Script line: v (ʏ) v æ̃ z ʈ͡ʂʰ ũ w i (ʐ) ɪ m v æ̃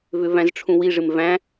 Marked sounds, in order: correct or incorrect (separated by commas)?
correct, correct